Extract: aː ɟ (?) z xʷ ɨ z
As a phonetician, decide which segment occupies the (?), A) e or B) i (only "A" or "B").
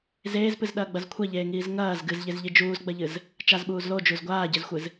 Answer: A